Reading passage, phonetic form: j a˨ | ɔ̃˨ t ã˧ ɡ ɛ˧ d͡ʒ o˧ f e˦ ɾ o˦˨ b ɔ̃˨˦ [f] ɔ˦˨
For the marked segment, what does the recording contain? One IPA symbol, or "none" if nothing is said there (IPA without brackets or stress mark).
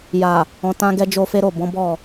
b